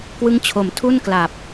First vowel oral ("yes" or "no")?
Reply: yes